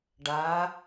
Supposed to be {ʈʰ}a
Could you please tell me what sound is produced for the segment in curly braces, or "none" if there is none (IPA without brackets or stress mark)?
ɖ